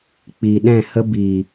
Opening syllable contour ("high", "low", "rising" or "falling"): low